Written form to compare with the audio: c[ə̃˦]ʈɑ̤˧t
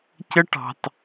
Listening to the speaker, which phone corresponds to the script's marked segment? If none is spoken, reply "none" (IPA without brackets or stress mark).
ə˦